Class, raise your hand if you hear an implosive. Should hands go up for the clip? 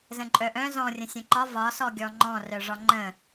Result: no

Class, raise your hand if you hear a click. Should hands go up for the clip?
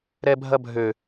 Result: no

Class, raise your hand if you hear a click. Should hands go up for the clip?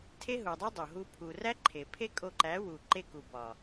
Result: yes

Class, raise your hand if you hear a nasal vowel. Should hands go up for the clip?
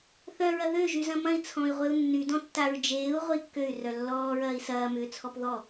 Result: yes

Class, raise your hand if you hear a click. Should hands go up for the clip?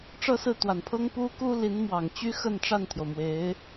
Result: no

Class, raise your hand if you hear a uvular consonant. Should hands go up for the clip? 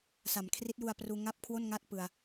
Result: no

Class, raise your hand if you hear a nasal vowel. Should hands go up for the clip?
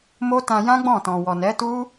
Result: yes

